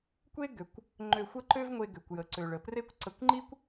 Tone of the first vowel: high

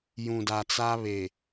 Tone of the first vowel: low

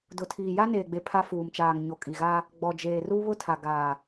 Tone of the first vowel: low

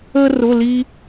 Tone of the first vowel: high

